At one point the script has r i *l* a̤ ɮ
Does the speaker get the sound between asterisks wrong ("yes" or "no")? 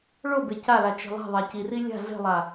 yes